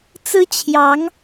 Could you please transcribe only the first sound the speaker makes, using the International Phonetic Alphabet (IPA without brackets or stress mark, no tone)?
t͡s